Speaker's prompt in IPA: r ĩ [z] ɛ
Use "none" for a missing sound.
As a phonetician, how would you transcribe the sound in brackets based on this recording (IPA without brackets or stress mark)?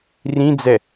d͡z